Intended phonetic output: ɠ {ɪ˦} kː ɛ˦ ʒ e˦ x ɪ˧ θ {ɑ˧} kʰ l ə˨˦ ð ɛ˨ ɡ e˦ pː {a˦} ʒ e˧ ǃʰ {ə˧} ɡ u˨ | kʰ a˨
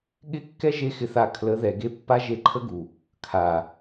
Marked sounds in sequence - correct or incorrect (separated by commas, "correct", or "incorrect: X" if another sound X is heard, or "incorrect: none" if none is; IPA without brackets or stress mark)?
correct, incorrect: a˧, correct, incorrect: ə˦